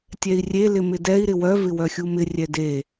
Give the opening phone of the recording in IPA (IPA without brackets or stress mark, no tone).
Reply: tʲ